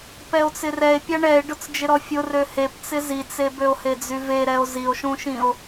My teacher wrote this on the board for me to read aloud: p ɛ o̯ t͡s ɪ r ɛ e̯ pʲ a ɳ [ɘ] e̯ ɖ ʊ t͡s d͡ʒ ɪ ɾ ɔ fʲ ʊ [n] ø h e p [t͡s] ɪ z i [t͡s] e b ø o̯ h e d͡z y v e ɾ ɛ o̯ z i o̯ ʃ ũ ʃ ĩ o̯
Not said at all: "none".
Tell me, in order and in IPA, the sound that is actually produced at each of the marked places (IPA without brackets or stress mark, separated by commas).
ɛ, r, t͡s, t͡s